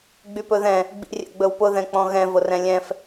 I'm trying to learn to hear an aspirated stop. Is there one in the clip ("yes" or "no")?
no